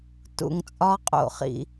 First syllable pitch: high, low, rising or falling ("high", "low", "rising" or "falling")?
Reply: low